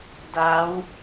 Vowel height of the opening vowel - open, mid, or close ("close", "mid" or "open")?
open